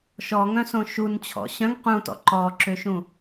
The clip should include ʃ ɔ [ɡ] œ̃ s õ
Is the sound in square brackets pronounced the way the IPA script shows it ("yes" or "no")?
no